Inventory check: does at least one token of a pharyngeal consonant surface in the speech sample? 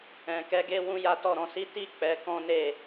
no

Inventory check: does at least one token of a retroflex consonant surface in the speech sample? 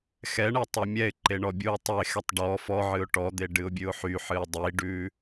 yes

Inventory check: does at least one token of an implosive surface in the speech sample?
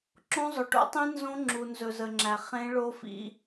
no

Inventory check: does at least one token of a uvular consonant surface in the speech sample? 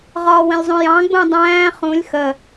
yes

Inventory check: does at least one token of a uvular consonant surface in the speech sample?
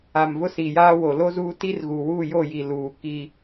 no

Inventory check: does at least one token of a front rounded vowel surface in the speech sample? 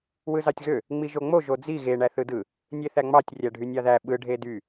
yes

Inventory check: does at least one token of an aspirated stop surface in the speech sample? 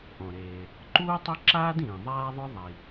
no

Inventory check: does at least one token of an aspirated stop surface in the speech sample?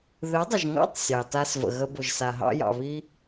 no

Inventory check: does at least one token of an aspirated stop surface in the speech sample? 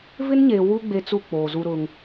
no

